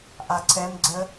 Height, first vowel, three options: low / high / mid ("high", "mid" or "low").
low